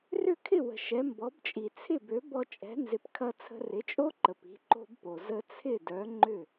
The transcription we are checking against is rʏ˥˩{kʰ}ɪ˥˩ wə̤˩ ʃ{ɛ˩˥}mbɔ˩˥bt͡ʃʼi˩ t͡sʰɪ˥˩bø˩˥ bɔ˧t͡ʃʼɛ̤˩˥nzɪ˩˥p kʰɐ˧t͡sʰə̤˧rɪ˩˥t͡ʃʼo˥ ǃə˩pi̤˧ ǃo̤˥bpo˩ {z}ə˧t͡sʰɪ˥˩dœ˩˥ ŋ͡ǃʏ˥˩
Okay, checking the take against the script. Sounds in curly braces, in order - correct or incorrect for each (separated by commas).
correct, correct, correct